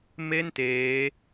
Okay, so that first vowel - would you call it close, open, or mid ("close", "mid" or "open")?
mid